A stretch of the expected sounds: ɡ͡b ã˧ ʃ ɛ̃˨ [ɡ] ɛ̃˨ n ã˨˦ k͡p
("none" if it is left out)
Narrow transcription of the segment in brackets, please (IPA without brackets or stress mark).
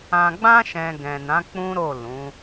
ɡ